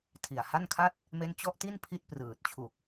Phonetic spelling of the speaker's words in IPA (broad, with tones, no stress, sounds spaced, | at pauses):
tʰ i˨˩ a̯ h a˥˩ n kʰ a˥˩ t̚ | m e˦˥ n t͡ɕ ɔ˦˥ ʔ t i˥˩ n pʰ i˥˩ t̚ p r ɯː˨˩ t̚ t͡ɕʰ u˨˩ k̚